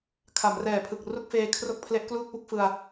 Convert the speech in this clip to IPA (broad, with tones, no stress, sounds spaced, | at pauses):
kʰ a˩˦ m r ɛː˨˩ pʰ ɯ˨˩ k̚ r u˥˩ k̚ f eː˧ kʰ r o˥˩ k̚ pʰ l e˦˥ ʔ k l uː˥˩ k̚ p u˦˥ k̚ f ɯ˧ a̯